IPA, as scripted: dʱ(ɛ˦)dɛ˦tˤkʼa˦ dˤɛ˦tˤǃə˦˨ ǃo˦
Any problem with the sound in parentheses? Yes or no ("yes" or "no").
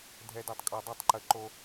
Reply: no